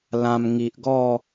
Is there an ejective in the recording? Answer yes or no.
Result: no